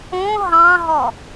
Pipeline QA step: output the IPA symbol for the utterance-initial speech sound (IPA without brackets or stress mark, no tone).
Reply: õ